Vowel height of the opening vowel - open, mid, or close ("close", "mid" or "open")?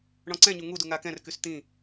mid